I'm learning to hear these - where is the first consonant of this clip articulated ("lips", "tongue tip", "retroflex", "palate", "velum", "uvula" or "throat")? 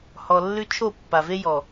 throat